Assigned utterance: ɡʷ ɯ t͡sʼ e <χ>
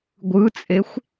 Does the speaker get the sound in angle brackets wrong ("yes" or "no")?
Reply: yes